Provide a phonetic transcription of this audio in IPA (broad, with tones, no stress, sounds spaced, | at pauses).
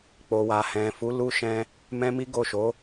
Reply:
k͡p o˨ w a˨ h ɛ̃˨ f u˨˦ l u˦ ʃ ɛ̃˦ | m ɛ̃˦ m i˦ ɡ o˦˨ ʃ o˨˦